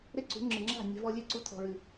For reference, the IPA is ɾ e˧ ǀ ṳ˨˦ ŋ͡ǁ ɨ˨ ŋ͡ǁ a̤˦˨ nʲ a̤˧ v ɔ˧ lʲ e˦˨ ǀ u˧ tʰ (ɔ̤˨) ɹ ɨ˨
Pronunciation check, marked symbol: correct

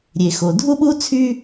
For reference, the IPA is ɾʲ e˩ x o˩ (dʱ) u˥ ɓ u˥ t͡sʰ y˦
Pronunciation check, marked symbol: correct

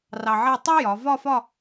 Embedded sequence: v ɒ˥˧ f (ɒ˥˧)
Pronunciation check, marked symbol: correct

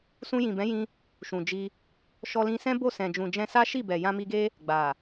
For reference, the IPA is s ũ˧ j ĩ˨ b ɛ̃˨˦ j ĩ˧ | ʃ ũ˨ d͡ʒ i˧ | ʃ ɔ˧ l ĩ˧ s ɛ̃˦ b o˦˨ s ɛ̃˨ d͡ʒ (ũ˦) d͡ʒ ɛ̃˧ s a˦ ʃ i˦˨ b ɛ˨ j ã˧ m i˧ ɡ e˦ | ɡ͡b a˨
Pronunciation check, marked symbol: incorrect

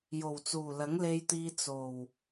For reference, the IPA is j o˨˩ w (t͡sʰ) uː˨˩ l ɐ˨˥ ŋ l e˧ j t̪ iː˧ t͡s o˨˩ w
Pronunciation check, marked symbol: incorrect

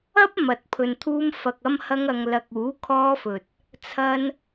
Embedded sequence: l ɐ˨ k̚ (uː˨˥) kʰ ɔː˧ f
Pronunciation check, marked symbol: correct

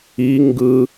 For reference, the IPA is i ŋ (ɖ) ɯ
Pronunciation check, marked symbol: incorrect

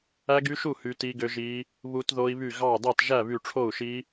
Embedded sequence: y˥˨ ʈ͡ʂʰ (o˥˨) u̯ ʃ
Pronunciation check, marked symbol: correct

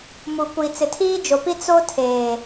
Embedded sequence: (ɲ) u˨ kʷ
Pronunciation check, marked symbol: incorrect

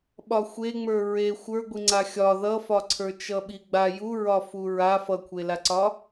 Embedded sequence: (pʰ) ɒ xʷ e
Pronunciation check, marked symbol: incorrect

